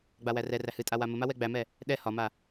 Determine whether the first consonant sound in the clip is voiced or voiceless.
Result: voiced